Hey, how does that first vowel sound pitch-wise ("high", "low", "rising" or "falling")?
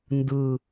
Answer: low